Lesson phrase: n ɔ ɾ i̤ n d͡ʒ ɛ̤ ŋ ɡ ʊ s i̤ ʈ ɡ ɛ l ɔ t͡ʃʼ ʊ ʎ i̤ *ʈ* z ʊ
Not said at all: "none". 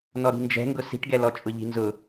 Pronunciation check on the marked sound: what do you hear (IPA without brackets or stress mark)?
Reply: n